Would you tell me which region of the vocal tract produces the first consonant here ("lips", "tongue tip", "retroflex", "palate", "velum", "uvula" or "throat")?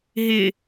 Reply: throat